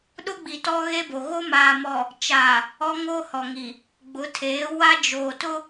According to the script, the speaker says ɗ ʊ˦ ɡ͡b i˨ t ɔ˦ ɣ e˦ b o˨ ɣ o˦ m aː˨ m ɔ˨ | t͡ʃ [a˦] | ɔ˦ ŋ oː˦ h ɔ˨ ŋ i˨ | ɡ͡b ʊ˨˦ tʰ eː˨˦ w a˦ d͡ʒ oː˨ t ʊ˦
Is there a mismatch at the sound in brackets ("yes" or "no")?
yes